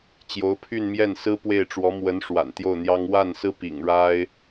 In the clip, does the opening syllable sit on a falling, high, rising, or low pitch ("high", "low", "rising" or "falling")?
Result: rising